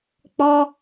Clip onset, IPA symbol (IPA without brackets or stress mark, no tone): k͡p